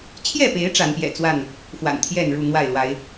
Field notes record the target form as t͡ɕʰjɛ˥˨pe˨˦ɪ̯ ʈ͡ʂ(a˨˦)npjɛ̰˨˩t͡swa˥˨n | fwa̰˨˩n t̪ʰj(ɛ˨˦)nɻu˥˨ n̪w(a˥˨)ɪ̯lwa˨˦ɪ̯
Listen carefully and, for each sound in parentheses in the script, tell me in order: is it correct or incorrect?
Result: correct, incorrect: ɛ˥˨, correct

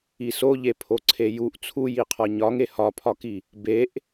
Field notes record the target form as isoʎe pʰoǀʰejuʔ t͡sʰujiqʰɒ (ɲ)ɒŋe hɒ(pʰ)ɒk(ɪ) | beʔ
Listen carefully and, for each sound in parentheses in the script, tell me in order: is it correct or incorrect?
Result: correct, correct, incorrect: i

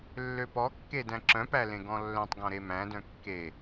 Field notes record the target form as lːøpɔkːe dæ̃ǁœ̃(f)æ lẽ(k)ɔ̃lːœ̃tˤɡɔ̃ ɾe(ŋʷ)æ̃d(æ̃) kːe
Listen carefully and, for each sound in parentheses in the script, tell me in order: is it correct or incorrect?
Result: incorrect: p, incorrect: ɡ, incorrect: m, incorrect: œ̃

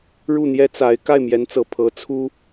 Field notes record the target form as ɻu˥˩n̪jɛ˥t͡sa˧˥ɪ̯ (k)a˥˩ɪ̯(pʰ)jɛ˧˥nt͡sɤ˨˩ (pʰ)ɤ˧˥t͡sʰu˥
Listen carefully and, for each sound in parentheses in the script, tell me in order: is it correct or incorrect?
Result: correct, incorrect: m, correct

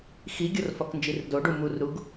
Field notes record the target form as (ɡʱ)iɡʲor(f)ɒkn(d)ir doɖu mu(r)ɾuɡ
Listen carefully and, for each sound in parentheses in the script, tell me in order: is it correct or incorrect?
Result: incorrect: x, correct, incorrect: d͡ʒ, correct

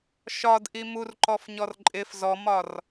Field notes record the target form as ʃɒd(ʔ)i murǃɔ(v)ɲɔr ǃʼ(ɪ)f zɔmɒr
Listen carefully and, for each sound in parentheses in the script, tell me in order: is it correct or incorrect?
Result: correct, incorrect: f, correct

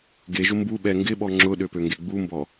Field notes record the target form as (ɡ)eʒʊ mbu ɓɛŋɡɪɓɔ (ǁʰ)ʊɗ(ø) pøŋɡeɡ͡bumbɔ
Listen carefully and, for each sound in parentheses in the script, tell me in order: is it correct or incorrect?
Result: correct, incorrect: ŋ͡ǁ, correct

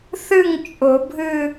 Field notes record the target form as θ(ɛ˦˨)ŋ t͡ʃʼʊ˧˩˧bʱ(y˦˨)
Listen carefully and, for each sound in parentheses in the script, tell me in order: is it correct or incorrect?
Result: incorrect: ɨ˦˨, incorrect: ɨ˦˨

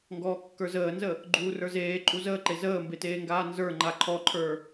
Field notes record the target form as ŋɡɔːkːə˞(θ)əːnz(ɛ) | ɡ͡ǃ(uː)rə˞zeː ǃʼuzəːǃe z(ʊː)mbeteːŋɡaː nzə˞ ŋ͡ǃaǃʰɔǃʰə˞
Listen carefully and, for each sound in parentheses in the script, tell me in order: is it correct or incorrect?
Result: incorrect: z, incorrect: ə, correct, incorrect: əː

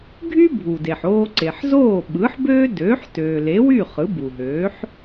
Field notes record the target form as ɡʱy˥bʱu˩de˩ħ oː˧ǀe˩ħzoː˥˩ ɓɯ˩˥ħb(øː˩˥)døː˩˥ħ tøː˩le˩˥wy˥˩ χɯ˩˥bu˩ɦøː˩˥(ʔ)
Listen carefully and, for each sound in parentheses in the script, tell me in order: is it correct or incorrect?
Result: incorrect: øː˥, incorrect: ħ

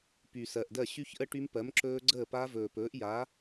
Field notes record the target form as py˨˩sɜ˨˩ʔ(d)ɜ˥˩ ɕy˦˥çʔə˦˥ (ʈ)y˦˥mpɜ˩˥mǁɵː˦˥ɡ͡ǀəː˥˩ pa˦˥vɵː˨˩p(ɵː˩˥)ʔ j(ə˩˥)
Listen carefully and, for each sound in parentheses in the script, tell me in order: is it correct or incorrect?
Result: correct, correct, correct, incorrect: a˩˥

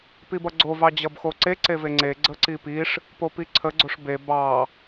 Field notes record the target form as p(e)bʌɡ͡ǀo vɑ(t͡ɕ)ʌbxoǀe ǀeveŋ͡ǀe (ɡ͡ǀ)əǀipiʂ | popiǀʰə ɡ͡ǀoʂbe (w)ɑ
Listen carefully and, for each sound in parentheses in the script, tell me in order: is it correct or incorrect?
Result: incorrect: i, incorrect: d͡ʑ, correct, incorrect: b

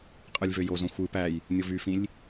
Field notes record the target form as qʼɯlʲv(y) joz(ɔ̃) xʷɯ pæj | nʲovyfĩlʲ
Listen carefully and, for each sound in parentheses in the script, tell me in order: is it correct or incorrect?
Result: incorrect: ø, incorrect: õ

